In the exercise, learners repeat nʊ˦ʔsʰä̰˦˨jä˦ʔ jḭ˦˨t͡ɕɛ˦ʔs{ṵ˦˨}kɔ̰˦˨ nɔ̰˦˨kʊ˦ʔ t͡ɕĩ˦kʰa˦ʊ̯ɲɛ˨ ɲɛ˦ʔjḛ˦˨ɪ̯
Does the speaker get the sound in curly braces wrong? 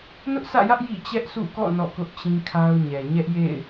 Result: no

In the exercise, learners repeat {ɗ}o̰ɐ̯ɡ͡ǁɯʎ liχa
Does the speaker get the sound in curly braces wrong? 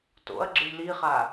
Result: yes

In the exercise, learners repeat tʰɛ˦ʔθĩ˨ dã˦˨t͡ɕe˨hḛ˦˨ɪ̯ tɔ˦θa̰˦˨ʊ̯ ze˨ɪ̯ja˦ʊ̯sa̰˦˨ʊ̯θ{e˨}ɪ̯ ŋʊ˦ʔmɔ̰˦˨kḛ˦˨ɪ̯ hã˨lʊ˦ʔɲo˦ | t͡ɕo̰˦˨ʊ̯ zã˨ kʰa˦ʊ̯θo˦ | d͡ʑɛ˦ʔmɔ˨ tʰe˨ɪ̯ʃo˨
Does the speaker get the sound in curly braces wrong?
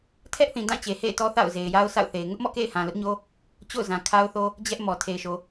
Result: no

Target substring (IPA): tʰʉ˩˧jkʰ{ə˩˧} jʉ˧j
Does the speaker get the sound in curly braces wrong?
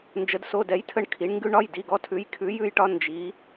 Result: yes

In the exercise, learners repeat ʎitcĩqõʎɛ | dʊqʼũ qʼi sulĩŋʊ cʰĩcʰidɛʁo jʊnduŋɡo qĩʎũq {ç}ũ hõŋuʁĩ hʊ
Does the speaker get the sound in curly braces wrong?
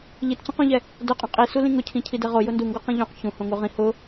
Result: no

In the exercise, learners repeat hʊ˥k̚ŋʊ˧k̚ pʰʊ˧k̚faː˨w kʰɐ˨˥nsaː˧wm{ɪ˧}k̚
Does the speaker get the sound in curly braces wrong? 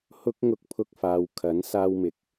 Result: yes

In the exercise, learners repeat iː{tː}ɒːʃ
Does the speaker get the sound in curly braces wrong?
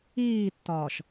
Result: no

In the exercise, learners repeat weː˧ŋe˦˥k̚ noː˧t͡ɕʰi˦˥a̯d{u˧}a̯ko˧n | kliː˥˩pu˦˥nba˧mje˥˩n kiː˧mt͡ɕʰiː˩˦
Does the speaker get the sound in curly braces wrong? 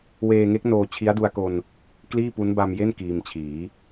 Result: no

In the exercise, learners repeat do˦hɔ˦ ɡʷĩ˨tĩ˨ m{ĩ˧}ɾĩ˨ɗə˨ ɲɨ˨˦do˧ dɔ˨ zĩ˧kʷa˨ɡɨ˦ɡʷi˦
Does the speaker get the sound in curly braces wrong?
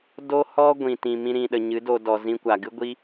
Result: no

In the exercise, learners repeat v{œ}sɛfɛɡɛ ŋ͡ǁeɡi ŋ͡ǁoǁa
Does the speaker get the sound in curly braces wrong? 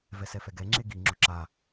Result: yes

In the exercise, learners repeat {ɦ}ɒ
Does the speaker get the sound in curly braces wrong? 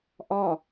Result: yes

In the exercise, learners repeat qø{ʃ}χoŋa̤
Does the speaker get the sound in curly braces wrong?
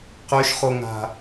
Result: no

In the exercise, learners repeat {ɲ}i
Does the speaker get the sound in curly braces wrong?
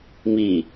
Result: yes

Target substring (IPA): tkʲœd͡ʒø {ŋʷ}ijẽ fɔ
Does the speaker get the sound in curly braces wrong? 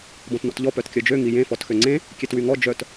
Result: yes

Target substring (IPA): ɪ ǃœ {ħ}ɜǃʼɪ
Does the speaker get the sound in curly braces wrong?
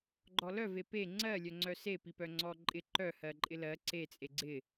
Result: yes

